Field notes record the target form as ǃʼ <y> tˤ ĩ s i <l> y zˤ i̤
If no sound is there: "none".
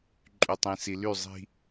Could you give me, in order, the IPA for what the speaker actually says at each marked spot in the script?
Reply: y, l

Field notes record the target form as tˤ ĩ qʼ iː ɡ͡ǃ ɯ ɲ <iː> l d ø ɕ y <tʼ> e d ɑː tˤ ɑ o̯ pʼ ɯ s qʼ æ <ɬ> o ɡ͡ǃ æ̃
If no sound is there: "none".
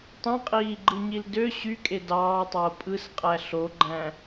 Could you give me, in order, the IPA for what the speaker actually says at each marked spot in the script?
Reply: i, kʼ, ɬ

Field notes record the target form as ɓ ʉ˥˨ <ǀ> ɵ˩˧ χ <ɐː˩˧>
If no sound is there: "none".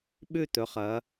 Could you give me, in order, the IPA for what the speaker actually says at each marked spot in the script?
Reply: t̪, ɐː˩˧

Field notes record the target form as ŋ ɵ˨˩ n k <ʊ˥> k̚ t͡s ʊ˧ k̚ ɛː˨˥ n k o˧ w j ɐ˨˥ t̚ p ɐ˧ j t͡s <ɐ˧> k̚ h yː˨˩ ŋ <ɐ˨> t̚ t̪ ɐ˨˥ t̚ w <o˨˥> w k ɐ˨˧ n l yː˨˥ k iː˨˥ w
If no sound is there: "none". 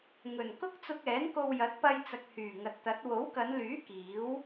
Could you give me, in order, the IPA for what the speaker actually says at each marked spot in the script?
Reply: ʊ˥, ɐ˨, ɐ˨, o˨˥

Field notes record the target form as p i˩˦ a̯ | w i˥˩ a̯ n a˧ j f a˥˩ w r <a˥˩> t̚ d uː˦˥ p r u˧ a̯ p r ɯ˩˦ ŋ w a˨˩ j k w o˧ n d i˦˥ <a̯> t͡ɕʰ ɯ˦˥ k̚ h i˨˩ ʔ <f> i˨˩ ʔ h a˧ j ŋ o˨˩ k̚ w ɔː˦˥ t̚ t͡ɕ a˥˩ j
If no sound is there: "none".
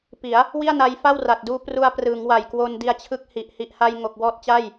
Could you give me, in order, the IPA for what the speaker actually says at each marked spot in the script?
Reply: a˨˩, a̯, h

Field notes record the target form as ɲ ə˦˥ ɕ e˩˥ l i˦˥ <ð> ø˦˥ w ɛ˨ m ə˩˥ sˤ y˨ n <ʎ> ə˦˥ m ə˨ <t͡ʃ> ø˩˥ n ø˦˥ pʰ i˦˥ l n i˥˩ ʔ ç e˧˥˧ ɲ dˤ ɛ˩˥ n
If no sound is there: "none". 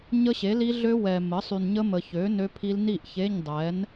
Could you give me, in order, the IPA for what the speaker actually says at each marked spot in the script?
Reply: ɮ, ɲ, ç

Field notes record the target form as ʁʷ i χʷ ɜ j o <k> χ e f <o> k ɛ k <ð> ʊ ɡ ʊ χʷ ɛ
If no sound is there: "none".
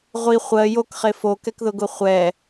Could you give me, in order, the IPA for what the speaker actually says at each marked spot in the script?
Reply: k, o, ð

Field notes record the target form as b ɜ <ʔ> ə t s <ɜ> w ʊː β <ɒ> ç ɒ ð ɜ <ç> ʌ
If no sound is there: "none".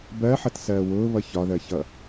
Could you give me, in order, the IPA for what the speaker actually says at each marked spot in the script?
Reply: ħ, ɜː, ʌ, ç

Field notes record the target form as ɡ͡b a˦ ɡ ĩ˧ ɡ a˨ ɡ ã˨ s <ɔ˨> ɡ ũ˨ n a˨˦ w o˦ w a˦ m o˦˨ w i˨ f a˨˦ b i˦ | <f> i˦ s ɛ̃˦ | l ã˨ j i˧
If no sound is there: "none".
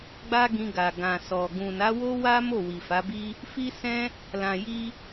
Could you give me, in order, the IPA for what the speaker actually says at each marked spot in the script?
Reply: ɔ˨, f

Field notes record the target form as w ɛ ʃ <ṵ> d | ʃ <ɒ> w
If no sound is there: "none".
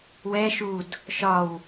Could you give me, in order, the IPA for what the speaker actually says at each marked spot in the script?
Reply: u, ɒ

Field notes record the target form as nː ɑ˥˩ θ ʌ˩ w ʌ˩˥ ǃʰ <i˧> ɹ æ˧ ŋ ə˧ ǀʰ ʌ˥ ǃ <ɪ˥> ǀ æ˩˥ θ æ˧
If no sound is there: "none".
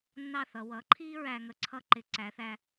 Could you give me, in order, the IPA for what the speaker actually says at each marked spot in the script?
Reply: i˥, ɪ˩˥

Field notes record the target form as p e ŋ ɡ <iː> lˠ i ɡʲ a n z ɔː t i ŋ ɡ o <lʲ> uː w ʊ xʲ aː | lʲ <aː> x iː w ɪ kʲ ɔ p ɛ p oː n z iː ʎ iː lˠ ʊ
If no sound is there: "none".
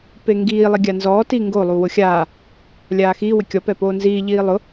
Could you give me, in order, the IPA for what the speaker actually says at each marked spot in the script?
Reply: iː, lˠ, aː

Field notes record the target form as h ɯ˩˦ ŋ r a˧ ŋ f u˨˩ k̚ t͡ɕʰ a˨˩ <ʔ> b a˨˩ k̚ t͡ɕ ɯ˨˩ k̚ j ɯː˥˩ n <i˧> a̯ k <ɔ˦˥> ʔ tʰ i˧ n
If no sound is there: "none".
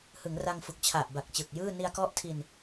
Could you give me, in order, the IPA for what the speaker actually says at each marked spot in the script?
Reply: ʔ, i˧, ɔ˦˥

